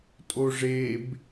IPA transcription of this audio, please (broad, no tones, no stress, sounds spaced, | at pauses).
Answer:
tʼ o ʐ e b